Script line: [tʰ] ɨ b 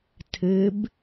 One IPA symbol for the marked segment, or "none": tʰ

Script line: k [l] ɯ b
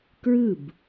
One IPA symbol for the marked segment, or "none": ɹ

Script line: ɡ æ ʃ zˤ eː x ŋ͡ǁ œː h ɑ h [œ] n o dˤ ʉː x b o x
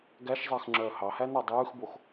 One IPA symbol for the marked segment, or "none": æ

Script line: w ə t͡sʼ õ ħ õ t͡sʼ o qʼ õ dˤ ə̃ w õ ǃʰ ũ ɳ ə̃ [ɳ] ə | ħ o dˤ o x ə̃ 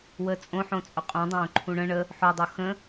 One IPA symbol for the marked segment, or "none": ɳ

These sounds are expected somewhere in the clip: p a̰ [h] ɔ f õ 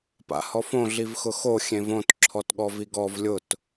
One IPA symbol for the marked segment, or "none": h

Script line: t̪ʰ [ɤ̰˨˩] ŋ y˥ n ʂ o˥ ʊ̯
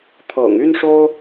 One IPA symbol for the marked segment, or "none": ɤ̰˨˩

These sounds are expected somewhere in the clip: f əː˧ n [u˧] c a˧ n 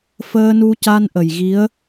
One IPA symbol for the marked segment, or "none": u˧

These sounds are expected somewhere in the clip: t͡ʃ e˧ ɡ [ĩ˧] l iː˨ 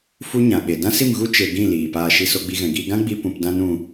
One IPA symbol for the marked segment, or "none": ĩ˦˨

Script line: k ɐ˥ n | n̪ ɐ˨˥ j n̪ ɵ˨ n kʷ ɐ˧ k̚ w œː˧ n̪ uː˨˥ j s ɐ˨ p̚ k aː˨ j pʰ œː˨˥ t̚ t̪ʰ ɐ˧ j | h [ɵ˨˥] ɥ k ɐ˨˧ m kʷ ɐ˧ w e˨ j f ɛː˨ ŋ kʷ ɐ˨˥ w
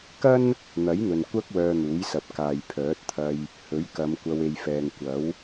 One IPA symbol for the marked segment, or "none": ɵ˨˥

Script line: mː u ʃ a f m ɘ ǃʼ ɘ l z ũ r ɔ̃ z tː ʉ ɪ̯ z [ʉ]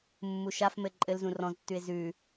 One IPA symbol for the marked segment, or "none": ʉ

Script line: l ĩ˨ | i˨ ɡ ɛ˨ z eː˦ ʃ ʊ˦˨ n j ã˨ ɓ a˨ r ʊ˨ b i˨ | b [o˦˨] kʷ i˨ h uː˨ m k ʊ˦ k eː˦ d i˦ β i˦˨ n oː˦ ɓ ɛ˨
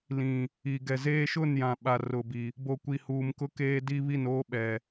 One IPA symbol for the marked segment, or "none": o˨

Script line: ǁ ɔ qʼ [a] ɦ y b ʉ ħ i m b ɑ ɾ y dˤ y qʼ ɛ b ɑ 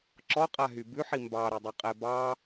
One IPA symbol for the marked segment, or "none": a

